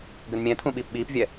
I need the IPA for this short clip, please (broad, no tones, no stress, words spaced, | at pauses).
ɡɘnmʲɛ̃t̪ʰũ ɓiːpɓiːpvʲɛ